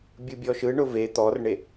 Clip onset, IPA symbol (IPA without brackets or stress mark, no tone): bʲ